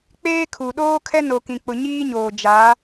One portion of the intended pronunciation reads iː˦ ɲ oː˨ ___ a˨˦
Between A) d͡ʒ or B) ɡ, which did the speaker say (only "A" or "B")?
A